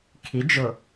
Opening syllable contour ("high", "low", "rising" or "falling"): rising